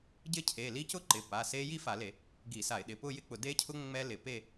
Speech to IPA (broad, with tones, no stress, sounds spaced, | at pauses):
ɟ ɪ˦˥ cʰ e˩˧˩ l i˦˥ c ʊ˦˥ ǃ ɪ˩˧˩ p a˩˧˩ s e˦˥ j i˥˧ f a˧˩˧ l e˧˩˧ | ɡ i˧˩˧ s a˧˩˧ ɪ̯ ɗ ɪ˩˧˩ p ʊ˥˧ j ɪ˥˧ k͡p ʊ˧˩˧ d e˦˥ cʰ ʊ˦˥ ŋ͡m ɛ˦˥ l ɪ˧˩˧ p e˥˧